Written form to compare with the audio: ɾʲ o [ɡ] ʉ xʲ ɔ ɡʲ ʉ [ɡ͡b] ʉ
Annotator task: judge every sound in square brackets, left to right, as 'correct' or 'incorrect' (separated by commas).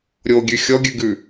incorrect, incorrect